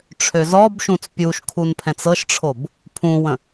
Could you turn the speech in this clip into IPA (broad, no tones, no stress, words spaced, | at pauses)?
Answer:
ʈ͡ʂʰøzɔbʃũt͡s pʲuʃkʰun pʰɛ̃t͡sɤʃʈ͡ʂʰob | pʰũwə̃